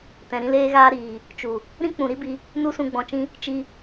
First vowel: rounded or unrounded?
unrounded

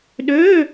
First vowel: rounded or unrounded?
rounded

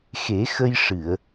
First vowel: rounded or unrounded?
unrounded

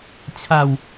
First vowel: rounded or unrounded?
unrounded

